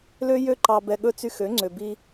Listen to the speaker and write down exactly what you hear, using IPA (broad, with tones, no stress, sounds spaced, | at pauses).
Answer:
l ø˦ j ø˦ ǃ ɑ˧ b ɛ˧ ɠ ɵ˦ t͡s y˧ x ø˨˦ ŋ͡ǀ ø˨ b i˧